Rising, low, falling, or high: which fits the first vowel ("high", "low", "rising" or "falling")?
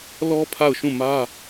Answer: high